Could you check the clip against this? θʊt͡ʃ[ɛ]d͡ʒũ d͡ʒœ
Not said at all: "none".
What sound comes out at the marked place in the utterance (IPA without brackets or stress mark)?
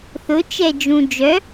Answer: ɛ